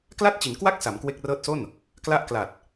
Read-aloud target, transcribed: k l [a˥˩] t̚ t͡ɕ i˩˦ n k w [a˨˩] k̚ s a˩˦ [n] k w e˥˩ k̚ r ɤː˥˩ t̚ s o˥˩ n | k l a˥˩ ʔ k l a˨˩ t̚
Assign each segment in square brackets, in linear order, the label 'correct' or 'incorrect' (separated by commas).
correct, incorrect, incorrect